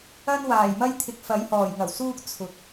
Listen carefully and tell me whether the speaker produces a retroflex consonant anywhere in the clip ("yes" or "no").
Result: no